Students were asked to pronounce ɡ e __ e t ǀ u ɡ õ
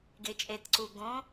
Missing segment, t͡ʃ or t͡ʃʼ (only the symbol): t͡ʃʼ